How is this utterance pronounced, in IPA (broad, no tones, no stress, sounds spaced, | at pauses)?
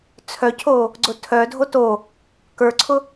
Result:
t͡sʰ œ cʰ o | ɡ͡ǀ ʊ tʰ œ dʱ o t o | k ə˞ ǀʰ ʊ